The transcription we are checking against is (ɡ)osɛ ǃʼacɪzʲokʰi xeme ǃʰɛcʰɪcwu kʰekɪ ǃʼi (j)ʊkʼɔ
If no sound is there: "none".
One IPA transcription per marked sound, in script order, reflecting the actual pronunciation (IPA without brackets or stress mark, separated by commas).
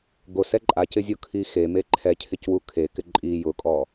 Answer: ɡ, j